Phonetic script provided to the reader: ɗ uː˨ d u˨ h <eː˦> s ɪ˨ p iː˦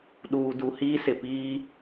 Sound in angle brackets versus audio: incorrect: iː˦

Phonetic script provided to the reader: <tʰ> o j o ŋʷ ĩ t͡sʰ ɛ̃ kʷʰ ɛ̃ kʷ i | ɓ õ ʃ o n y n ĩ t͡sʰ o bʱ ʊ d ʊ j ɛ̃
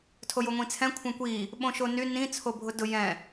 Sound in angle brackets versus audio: correct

